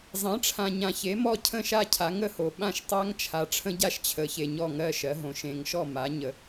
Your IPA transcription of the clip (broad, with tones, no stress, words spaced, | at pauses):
zˤẽ˩˥ʈ͡ʂʰã˨ ɲã˨çe˩˥mɔ˥˩ cʰə̃˥˩ʃa˥˩cʰa˩˥ ŋə˥˩ho˨ ɓã˥˩ʃtˤa˦˥ŋt͡ʃʰa˩˥ ʈ͡ʂʰə̃˦˥ɟa˥˩ʃt͡ɕʰə˨˩˦çe˨ ɲɔ˥˩ŋɜ˦˥ ʃɜ˩˥ɦõ˨˩˦ʃ ẽ˨˩˦ŋʃɔ˥˩ ma˩˥ɲə˨